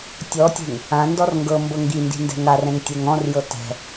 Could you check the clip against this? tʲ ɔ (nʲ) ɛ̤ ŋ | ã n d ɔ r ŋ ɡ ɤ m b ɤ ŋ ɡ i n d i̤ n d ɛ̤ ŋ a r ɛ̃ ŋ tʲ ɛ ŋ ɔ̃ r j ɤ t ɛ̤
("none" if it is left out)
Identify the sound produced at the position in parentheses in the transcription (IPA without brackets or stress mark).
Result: tʲ